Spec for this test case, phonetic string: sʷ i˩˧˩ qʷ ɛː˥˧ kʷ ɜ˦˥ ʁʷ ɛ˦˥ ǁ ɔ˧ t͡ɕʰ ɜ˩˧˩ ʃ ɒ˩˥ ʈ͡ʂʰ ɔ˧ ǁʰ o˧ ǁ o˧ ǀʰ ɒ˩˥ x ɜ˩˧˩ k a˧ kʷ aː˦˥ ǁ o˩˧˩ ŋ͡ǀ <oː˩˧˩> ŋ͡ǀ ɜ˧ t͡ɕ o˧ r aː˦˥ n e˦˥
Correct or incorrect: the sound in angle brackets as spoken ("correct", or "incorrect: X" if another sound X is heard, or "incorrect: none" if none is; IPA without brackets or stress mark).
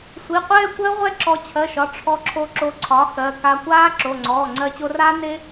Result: incorrect: ɔː˩˧˩